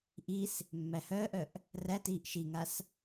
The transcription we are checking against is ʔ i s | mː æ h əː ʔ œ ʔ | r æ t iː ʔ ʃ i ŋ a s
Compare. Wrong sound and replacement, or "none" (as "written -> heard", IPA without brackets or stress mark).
əː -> œː